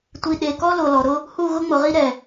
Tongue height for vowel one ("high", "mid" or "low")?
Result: high